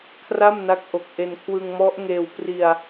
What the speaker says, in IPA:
kʰra˥˩mna˦˥k̚ʔo˨˩k̚ ʔe˧n kʰwɯ˧ŋmɔ˦˥ʔŋeː˧w pri˧a̯

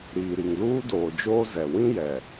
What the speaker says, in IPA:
ɾiː˨ɾi˨ŋluː˦ doː˨d͡ʒoː˦ zɛ˨ wĩ˦jɛ˨

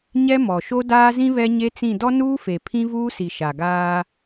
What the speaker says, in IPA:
ɲɛ˦mɔ˨ʃo˦ daː˦zĩ˦ βɛ˦ɲe˦t͡sĩ˦˨ dɔ˦nuː˦fe˨ pʰĩ˦vuː˦ si˨ʃa˨ɡaː˦

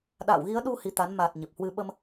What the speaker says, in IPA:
ɗa̰ː˧˨wɣi˨˦ə̯ɗu˧ hi˧t̪a˨˦n ma˨˩t̚ ɲə˨˩p̚hwɨ˧ ɓə˧m

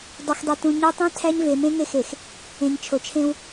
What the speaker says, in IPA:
dˤo˨xdˤe˨tũ˨ ɲo˦ tˤĩ˦ tʰæ˦ɲve˨ mẽ˦ŋe˦˨xe˨x | ẽ˨ɲ t͡ʃʰo˨t͡ʃʰẽ˦w

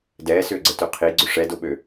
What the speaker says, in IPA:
dɛːsʏːɡ͡ǀətø qʰiɡ͡ǀʏ ʂɛdoɓø

